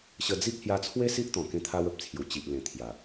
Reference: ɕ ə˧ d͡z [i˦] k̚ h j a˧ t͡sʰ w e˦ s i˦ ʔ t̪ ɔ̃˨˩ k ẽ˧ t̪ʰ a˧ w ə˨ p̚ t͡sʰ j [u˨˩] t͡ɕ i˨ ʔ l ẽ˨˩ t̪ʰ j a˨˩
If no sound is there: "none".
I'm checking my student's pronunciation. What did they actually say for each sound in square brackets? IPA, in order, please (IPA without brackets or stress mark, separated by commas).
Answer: i˦, u˨˩